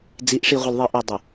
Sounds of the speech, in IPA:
d͡z i˨˦ ʔ ʂ i˨ ʁʷ ɪ˨ l ðˤ i˨ ʔ ɔ˨ dˤ ə˨

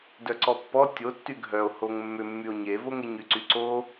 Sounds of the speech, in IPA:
d œ ǀ ɔ pː ɔ tʲ o tː y ɡʱ œ o̯ h o ŋ mː ʏ mː y o̯ ɲ e v o ŋ e ɲ y ǀ y ǀ o

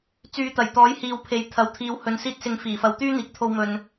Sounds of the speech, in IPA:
t͡s yː˨˧ t̪ ɐ˨˩ j t̪ ɔː˨˥ j h iː˨ w pʰ e˨˥ j t̪ʰ ɐ˨˥ w t̪ʰ iː˨˧ w h ɵ˨ n s iː˧ t̚ s ɪ˨˧ ŋ f iː˨˩ f ɐ˨ w t̪ yː˥ n̪ iː˨ k̚ t̪ʰ o˧ w m ɵ˨ n

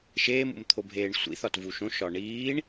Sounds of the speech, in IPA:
ʃ eː m ṵ m t̪ʰ o bʱ eː ɳ sʷ ḭ θ ɒ t v u ʃ õ ʃ ɒ ɳ iː ɳ

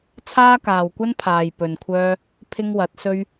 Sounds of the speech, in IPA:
t͡sʰ aː˥ k aː˨ w kʷ ɐ˥ n pʰ aː˨ j p ɵ˨ n kʷʰ œː˥ | pʰ ɪ˥ ŋ w ɐ˨˥ t̚ s ɵ˥ ɥ

